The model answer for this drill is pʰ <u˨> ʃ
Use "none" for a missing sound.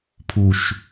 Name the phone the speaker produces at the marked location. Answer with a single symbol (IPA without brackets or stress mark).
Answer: u˨